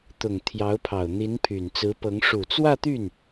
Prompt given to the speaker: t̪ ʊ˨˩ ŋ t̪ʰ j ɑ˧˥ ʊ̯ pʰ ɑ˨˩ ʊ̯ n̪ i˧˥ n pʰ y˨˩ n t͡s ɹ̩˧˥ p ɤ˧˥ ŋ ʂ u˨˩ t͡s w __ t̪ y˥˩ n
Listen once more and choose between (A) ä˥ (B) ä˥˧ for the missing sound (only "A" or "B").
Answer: B